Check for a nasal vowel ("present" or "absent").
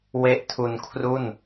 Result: absent